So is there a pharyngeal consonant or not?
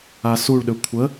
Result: no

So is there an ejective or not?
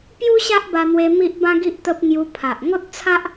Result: no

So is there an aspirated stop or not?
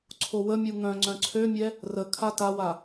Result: yes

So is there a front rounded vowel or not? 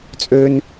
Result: yes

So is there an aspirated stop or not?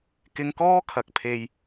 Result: yes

